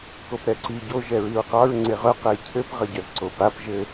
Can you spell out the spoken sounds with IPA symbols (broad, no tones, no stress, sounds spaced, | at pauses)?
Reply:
k o p ɾ ɛ ǀ i ɟ o ʒ ɛ ɹ i ɹ q ɑ ɹ ŋ͡ǀ e ʁ œ q ɛ j cʰ ɘ p ʁ ə ɟ œ z ǀ o p a p ʒ ɘ